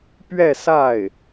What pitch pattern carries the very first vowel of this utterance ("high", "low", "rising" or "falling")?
falling